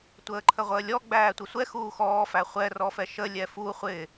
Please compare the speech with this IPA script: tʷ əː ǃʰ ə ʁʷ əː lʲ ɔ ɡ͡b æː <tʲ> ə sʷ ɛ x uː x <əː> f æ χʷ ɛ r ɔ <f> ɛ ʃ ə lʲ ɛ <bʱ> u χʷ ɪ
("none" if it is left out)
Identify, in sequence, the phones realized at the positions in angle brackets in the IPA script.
tʷ, ɔː, f, f

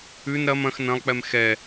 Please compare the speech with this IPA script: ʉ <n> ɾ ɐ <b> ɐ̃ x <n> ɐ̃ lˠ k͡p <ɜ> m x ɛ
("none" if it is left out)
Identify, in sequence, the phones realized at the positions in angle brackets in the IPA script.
n, m, n, ɛ

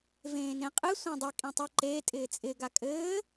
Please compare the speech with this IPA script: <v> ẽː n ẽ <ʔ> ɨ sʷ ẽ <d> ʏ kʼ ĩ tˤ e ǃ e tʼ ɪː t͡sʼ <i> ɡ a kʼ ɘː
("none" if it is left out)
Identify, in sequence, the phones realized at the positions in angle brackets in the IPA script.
v, qʼ, dˤ, ɪ

